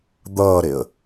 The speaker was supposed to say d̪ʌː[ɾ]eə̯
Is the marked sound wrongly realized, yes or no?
no